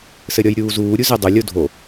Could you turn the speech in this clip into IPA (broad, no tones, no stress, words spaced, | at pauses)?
sɘɾʲɔjɾʲuːzuː ɾʲuzɘ dˤʊ lʲodʱo